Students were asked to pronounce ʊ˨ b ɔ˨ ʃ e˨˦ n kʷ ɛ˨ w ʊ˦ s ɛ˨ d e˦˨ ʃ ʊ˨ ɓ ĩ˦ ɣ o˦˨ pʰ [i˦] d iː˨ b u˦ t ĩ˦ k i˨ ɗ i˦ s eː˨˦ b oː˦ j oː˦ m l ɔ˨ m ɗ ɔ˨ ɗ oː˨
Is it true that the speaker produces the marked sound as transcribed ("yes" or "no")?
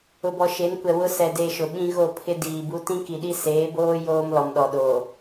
no